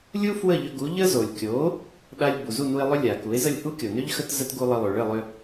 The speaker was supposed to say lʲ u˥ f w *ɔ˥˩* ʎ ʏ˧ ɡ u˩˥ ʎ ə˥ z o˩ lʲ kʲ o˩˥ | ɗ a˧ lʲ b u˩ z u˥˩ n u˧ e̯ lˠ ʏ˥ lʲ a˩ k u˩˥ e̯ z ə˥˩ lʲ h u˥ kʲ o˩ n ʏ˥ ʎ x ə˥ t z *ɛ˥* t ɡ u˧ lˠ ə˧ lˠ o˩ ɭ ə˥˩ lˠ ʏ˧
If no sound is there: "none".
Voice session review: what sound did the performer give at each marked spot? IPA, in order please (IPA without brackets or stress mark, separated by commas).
ə˥˩, ə˥